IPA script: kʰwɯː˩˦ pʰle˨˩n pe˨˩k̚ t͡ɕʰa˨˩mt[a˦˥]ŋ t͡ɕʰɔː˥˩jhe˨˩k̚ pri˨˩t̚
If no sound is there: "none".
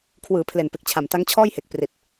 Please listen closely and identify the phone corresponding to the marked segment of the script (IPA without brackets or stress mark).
a˦˥